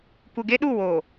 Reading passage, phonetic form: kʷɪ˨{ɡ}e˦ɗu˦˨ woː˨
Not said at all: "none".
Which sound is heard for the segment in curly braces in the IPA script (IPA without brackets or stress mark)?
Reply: ɡ